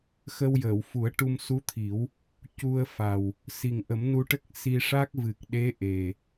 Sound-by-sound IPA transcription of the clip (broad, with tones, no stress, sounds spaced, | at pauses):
x ə˧ w j əː˨˩˨ w f u˨˩˦ ə̯ ʈ u˧ m s u˧˥ t̪ʰ i˨˩˦ w | c u˧ ə̯ f a˨˩ w | s i˨˩ ŋ ʔ ə˨˩˦ m n u˧ ʈ ə˦˥ k̚ s i˧ ʂ a˦˥ k̚ v ɨ˨˩ k̚ ɗ e˧˥ ʔ e˨˩